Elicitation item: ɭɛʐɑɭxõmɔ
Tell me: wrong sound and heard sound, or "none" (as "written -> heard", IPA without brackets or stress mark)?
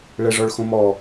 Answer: ɑ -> ɔ